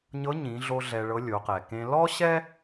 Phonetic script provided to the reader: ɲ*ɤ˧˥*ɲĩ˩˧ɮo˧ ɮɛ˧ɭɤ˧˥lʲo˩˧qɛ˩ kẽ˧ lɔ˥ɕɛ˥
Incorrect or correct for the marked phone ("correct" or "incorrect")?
correct